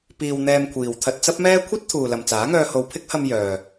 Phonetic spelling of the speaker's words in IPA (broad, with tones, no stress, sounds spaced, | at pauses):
p iː˧ w n̪ ɛː˧ m kʷʰ iː˨ w t̪ʰ ɐ˧ t̚ t͡s ɐ˥ p̚ m ɛː˥ kʷʰ ɐ˥ t̚ t̪ʰ uː˨ l ɐ˨ m t͡s aː˨˥ ŋ œː˧ h o˨ w pʰ ɪ˥ k̚ h ɐ˧ m j œː˨